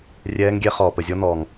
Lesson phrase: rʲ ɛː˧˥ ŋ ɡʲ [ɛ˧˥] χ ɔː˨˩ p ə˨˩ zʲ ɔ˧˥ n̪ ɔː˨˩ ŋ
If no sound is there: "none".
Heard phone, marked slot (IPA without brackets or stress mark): ɛ˧˥